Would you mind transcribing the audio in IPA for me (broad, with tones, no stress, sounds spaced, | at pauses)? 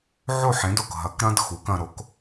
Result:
ʕ o˥˩ ħ ẽ˩˥ d o˩ k ɦ ɐ˩˥ k ɾ ɐ̃˥ d x u˩˥ k ɐ̃˧ ɾ o˩˥ k